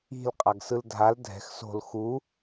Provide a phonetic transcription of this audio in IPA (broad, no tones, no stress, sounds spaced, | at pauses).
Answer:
i̤ l qʼ a ɡ s ɯ l dʱ a l dʱ ɛ̤ x s o̤ l x u